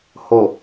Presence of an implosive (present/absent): absent